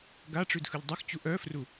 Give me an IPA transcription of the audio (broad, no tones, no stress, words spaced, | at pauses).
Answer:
ɡaʈ͡ʂʉd xɯʎdˤɯxt͡ɕu ʔœfru